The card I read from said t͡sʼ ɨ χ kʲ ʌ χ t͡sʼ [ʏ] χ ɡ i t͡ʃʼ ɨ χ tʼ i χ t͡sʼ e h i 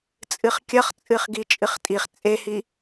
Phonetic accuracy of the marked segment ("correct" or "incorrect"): incorrect